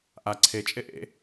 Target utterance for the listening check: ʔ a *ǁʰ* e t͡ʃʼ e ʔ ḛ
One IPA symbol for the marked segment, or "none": ǀʰ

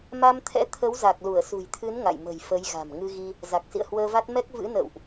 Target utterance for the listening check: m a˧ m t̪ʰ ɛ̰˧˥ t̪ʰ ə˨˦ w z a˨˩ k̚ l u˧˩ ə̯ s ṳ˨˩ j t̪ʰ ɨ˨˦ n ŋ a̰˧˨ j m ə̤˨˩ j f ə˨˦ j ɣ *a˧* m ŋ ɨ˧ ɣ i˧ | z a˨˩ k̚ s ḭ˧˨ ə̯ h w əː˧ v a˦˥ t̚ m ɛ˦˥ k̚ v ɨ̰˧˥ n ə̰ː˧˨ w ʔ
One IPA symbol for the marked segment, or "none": a̤˨˩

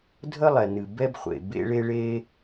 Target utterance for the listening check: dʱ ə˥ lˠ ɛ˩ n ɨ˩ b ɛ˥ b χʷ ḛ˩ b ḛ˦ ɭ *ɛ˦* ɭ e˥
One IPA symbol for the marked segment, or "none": e˦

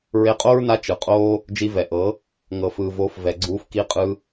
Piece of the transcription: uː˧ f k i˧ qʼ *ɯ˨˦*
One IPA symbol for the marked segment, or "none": ɯ˧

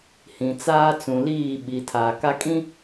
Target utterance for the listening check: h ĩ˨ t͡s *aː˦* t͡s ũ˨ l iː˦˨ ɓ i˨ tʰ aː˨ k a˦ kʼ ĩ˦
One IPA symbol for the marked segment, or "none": aː˦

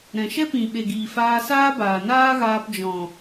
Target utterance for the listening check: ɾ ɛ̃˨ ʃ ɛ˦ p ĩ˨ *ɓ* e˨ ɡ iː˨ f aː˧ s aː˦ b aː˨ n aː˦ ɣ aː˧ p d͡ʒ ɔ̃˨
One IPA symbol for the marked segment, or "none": ɓ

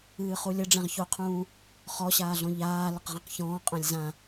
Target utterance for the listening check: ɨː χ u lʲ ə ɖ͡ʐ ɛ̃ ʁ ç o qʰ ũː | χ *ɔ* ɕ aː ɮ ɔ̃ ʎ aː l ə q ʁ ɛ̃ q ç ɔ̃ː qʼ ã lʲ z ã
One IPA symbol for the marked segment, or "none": ɔ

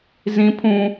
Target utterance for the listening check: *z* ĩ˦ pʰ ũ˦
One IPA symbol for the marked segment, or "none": z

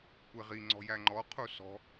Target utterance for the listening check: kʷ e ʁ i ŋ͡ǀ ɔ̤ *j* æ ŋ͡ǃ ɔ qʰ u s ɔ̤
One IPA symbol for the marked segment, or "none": j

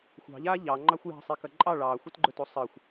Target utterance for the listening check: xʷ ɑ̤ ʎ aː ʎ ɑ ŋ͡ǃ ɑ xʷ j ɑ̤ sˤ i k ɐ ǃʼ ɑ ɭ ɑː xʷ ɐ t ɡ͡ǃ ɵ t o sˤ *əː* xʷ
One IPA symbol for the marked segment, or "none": əː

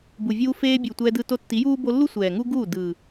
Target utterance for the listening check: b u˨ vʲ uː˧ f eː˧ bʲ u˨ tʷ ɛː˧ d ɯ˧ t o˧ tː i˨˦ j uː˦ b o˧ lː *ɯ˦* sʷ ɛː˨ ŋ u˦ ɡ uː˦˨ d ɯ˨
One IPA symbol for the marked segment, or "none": u˦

